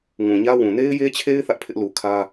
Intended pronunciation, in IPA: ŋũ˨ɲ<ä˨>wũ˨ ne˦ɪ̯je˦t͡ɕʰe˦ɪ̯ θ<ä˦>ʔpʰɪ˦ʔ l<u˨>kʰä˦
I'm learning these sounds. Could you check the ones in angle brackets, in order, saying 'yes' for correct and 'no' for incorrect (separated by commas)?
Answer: no, yes, yes